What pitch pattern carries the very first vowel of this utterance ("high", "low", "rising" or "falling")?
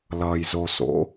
low